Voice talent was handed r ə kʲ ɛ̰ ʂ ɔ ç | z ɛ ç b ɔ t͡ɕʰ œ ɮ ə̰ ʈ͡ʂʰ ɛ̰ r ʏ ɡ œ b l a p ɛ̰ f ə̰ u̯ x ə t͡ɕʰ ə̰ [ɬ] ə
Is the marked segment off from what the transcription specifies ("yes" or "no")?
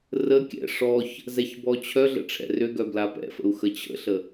no